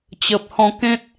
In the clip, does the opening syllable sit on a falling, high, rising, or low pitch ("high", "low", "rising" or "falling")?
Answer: low